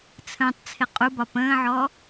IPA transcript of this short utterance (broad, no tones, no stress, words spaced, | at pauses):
t͡sʰə̃ːtˤt͡sʰɪ qʼubɒ pə̃ːʕɔ